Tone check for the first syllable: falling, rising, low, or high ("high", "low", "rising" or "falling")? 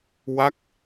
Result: falling